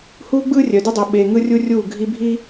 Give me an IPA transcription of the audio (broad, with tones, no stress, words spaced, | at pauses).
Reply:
huː˦ ɡ͡bɯː˦rʲœ˨ dɯ˦dˤu˨ ɓeː˨ ŋɯ˦rʲu˦rʲuː˦˨ ɡʱi˦bʱi˦